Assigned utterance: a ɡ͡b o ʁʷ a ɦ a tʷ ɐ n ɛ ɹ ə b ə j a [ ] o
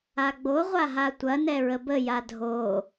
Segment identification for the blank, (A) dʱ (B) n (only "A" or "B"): A